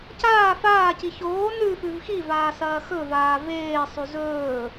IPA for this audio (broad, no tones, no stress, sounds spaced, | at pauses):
c aː f aː c i ç oː n ʉ f ʉ v x i v aː s ɐː x ɵ v aː v eː sˤ ʉ z ɵː